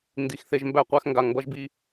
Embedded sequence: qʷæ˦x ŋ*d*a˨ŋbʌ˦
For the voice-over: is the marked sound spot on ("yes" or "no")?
no